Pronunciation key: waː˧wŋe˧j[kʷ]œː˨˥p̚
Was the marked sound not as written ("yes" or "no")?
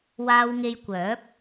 no